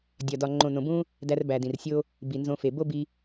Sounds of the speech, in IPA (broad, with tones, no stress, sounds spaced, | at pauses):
dʲ ɒ˨ d ɒ˨ ŋ͡ǃ õ˨ n õ˨ b ũ˦ | d æ˧ r b æ˨ d ĩ˨ r sʲ o˦ | b i˨ n z õ˧ f e˨ b o˦ b i˦